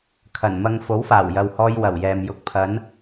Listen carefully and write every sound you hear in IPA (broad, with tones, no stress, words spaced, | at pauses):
kʰɐ˨˩nmɐ˧ŋ fo˨˥wfaː˨˩wjɐ˨whɔː˧j wɐ˨˩wjɛː˨m jʊ˧k̚pʰɐ˨˥n